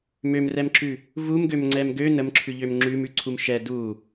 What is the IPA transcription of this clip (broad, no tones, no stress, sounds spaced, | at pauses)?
m ø m r ɛ m ǁ ʉ | v u m ɡ ø m ŋ͡ǀ ɛ m ɡ ø n ə m ǁʰ ʉ ʎ ø m ŋ͡ǁ ʉ m ʉ ǀʰ u m ʃ ɛ d u